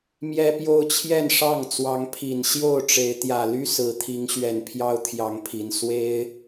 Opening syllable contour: high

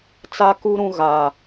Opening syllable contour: high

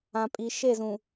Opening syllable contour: low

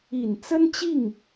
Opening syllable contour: low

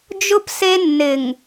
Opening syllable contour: high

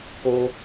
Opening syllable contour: high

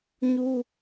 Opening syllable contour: high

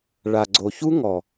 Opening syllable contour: low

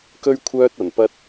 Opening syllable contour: high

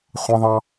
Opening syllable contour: high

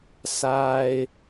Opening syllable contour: high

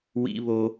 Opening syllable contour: high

